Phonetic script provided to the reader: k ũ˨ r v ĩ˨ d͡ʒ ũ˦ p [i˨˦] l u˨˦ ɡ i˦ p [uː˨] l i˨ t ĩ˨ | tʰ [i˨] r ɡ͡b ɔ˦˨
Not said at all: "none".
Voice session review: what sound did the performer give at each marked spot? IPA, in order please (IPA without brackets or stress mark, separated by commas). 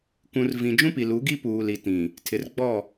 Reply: i˨, uː˨, ɪ˨